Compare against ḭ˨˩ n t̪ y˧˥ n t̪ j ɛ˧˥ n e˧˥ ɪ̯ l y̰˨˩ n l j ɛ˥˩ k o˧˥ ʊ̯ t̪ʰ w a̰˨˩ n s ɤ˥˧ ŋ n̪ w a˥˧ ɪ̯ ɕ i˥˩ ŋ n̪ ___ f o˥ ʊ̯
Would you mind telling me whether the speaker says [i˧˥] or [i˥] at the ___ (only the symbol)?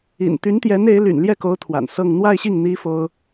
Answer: i˥